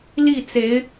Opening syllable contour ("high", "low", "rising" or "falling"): falling